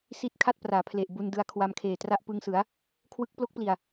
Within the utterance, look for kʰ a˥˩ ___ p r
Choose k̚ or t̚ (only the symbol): t̚